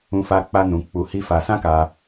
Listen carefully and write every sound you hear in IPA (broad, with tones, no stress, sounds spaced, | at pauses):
ũ˧ f a˧ k͡p a˦ n ũ˧ k͡p u˧ h i˦ f a˧ s ã˦ k a˧